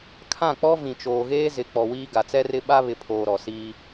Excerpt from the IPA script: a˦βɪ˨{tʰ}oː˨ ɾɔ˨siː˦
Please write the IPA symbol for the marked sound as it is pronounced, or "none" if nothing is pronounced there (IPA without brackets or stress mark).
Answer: pʰ